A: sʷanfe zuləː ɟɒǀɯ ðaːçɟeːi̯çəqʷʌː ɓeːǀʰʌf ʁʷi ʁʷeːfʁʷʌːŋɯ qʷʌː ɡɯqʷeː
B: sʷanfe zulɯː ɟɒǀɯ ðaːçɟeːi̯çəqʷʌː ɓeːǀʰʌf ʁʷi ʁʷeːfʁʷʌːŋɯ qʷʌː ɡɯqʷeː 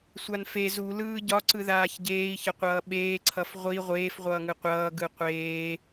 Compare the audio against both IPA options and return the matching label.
B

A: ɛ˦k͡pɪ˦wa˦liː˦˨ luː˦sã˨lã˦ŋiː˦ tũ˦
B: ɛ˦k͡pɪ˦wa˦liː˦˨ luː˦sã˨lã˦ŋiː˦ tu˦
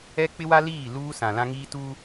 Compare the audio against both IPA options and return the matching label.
B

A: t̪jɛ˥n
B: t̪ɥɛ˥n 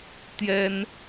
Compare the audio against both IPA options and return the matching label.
A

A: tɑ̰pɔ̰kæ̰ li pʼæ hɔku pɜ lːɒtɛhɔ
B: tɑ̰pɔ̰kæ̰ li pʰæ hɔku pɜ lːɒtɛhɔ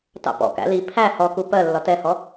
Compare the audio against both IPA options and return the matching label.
B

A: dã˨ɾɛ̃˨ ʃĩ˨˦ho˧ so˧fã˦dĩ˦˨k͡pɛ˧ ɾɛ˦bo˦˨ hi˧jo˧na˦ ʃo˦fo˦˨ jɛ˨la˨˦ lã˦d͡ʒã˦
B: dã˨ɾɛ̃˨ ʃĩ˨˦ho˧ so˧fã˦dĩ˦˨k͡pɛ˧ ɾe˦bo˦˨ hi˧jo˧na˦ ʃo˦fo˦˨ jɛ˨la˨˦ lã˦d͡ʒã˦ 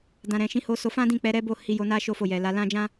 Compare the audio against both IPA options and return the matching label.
A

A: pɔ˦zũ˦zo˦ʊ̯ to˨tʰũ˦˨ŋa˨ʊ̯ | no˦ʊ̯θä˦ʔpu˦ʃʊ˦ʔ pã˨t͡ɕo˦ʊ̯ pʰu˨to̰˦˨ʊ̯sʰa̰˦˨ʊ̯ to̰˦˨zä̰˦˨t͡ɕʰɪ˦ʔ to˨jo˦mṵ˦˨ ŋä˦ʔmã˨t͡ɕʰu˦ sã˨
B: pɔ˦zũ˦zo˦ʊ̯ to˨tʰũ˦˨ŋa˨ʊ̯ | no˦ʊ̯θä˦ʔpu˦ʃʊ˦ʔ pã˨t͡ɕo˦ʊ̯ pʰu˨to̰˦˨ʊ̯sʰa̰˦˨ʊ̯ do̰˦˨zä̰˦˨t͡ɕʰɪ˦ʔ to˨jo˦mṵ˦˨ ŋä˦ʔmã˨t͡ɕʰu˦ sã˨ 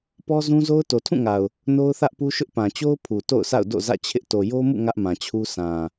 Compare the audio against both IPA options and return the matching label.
B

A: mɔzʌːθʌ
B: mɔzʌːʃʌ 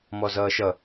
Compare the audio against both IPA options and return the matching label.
B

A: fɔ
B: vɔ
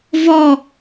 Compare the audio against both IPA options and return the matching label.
B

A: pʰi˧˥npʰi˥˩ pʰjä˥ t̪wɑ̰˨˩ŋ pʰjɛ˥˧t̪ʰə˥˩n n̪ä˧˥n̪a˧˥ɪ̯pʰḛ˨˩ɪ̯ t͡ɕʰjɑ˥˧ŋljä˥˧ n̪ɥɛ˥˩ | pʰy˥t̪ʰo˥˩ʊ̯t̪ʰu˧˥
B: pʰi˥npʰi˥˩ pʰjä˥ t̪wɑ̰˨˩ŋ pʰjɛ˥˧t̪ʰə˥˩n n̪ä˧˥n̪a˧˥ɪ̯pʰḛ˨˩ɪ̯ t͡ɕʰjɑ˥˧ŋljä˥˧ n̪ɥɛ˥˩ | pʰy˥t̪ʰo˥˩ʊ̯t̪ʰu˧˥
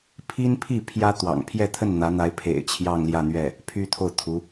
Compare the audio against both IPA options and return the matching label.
B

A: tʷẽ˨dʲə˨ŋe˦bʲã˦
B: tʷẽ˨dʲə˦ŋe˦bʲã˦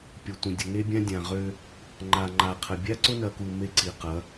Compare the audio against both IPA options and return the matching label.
A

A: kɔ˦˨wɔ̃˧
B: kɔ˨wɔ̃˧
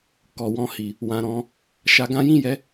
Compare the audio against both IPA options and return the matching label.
B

